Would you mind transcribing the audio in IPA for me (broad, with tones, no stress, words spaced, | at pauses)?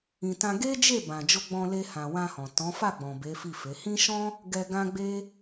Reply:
ĩ˨tã˧ ɡe˦d͡ʒe˦˨bã˨ d͡ʒo˧ɡ͡bɔ̃˧le˧hã˨ wã˧hɔ̃˨ tɔ̃˨˦fa˦˨ɡ͡bɔ̃˨ be˨˦fi˦˨fe˨˦ hĩ˦ ʃɔ̃˦ | ɡɛ˧ɡã˦ɡ͡be˦